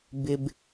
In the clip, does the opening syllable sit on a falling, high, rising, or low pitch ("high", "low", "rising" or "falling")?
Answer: low